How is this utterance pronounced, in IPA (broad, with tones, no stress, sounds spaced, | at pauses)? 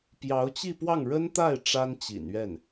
p j ɑ˧˥ ʊ̯ t͡ɕ i˥˧ p w ɑ˥˩ ŋ ɻ ə˥ n t̪ a˥˩ ɪ̯ ʈ͡ʂ a˥ n t͡ɕ ḭ˨˩ n ɥ ɛ˥˩ n